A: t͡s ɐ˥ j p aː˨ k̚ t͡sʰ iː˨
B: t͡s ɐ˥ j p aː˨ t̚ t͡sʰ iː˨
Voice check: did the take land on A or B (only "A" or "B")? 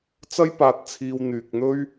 B